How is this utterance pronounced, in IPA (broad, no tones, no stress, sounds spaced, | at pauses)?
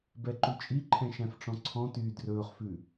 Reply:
b ɛ ǃ ʉ t͡ʃʼ i ǃʰ ɛ̃ ʃ æ̃ f ʈ͡ʂ ɔ̃ ǀʰ ɔ̃ t yː d r ɵː χ f ʉ